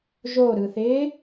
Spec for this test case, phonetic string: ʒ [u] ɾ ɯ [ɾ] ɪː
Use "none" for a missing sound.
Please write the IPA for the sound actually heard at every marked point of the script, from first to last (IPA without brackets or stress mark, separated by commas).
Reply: o, θ